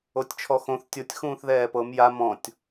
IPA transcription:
o tʲ t͡ʃʰ ɔ x õ θ tʲ o tʲ x ũː θ ð ɛː p ɤ m j a m ɔ̃ tʲ

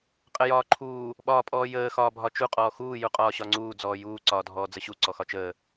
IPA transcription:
qʼ ə j ɒː ǃʰ uː | ɓ ɒː pʼ ɔː j əː x ɒː bʱ ɒ t͡ʃ u qʼ ɔː x uː j u qʼ ɒː ɕ ɒ ŋ͡ǀ uː d͡z ɔː j uː ǀ ɒː dʱ ɔː d͡z ə ɕ u ǀ ɔ x ɒ t͡ʃ əː

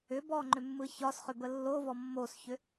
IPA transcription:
ʏ b ɔ ŋ͡ǃ ʏ mː ɯ ç ɒ s χ ʏ b ə lː o v ɔ mː o s ç ʏ

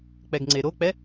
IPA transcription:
k͡p ɛ ɡ ŋ͡ǀ e ɾ o k͡p ɛ

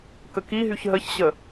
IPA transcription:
k ə k i ɦ y ç ɦ ə ç ɕ ə

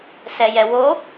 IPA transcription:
s ɛ j ɛ w o

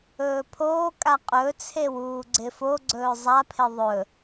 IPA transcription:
ɵː pʰ oː kʼ a qʼ ɵ t͡sʰ e w uː ɡ͡ǀ ɪ f o ɡ͡ǀ ɵː zˤ a pʰ ɪ ðˤ ɵ

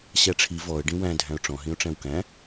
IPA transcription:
ɕ æ ʈ͡ʂʰ i v ɔ ə̯ ɖ ĩ w æ̃ dʱ æ̃ ʊ̯ ʈ͡ʂ ɔ̃ ɦ ĩ ʊ̯ ʈ͡ʂ æ̃ w k æ̃

